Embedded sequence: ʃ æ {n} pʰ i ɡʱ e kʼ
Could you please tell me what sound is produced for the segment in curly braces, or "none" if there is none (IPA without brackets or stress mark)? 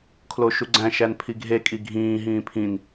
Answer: n